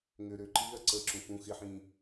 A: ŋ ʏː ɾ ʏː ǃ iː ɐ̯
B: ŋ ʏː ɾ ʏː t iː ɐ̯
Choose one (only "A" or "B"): A